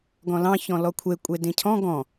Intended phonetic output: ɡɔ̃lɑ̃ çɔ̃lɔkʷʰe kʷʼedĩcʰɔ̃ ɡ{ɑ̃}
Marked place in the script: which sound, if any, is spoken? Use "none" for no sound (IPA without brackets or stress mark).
ɔ̃